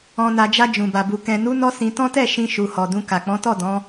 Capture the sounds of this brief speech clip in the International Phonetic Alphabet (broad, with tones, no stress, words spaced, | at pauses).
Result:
ɔ̃˨na˨d͡ʒa˧ d͡ʒũ˨ba˨bu˨ kɛ̃˨nu˨˦nɔ˧ sĩ˧tɔ̃˦tɛ˦˨ʃĩ˧ ʃu˨hɔ˨dũ˧ ka˨k͡pɔ̃˨˦tɔ˦˨ dɔ̃˨˦